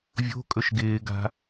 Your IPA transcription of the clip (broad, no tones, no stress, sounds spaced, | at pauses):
vʲ o̤ kʼ ɵ ʃ ɡ ɪː ɡ a̤